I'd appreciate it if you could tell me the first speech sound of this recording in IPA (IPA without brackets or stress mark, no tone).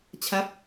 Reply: t͡ɕʰ